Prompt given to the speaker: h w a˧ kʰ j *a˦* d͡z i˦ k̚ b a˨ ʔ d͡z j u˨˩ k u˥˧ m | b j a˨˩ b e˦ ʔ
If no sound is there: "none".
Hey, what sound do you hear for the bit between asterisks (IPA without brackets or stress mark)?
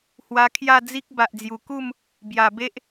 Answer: a˥˧